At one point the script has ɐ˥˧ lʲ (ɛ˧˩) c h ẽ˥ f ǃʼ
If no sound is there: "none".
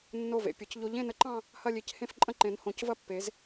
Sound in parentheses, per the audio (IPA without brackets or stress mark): e˧˩